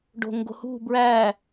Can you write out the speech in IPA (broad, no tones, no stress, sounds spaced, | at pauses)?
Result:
ɖ o̤ ŋ ɡ o̤ h ṳ b ɹ æ